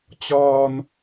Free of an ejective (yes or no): yes